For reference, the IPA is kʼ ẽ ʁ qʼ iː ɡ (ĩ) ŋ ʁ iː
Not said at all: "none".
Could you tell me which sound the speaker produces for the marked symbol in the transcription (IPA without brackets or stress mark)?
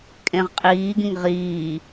ĩ